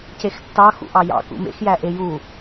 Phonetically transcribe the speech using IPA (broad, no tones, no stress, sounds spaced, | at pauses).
c e x tː ɑ x ṵ ʔ ɑ j ɑ̰ k ṵ m ḛ x j æ ʔ e j u